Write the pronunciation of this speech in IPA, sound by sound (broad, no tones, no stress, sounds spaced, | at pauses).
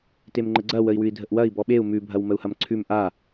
t e m ŋ͡ǃ ə ɡ͡ǀ ɐ w ə i̯ w ʉ i̯ dʱ ə ʔ w ɐ i̯ b ɔ ɓ e u̯ m ʉ bʱ ɐ w m ə u̯ h ɐ m ǀʰ ʉ m ʔ a